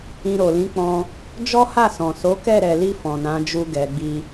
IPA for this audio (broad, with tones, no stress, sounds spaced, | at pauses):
ĩ˧ ɾ o˨ l ĩ˨˦ k͡p ɔ̃˧ | d͡ʒ ɔ˦ h a˦˨ s ɔ̃˨ s o˨˦ k ɛ˦˨ ɾ ɛ˨ l i˧ f ɔ̃˨ n ã˨˦ d͡ʒ u˧ ɡ ɛ˨ ɡ͡b i˧